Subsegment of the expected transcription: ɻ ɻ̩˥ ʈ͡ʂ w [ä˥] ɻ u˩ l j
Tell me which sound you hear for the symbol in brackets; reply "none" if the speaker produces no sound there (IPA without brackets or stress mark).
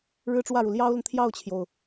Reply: ä˥˩